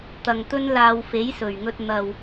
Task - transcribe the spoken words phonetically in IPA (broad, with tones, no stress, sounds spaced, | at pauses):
t̪ ɐ˨ ŋ t̪ ɵ˥ n l aː˧ w f e˨˥ j s ɵ˨˩ ɥ ŋ ɵ˧ t̚ n̪ ɐ˨ w